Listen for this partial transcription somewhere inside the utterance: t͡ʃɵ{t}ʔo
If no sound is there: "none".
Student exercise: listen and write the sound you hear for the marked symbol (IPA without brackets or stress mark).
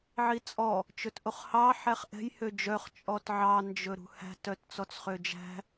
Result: t